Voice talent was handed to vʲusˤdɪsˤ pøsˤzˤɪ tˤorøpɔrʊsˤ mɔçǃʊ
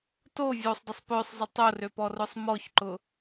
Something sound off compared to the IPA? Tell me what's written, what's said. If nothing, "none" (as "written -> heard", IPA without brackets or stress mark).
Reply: u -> o